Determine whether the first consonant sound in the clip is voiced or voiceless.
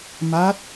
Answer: voiced